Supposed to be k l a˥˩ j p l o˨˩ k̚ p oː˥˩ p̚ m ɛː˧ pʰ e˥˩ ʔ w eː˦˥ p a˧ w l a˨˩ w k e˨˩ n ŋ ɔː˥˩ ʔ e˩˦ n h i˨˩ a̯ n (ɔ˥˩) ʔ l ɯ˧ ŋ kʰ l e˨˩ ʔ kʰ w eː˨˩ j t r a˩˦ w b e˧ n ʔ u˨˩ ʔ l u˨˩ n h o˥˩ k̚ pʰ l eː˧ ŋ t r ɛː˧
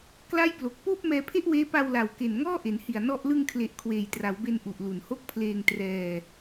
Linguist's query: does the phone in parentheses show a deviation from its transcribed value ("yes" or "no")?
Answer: no